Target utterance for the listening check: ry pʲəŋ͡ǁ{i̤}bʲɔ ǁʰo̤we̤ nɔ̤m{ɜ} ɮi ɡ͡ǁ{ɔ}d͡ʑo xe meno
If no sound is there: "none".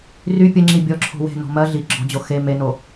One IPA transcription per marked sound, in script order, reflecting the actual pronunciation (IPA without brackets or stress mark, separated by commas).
i, ɜ, ɔ̤